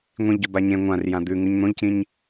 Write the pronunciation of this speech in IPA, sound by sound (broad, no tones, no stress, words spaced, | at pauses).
ŋʷĩʎɟo baɲẽ ŋʷãr jãd̪ʉ ŋʉɲn̪õʎcĩɲ